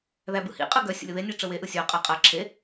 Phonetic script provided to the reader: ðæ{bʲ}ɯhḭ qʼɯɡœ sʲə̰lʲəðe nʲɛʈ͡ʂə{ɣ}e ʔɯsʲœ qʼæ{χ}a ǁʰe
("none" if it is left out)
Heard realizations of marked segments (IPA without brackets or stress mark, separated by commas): b, w, qʼ